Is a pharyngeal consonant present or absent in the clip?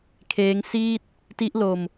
absent